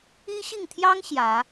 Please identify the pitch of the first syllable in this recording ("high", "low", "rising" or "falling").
high